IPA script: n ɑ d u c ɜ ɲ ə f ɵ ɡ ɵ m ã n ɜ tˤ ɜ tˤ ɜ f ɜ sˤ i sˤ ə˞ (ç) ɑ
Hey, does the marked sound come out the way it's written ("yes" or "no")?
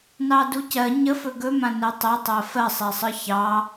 yes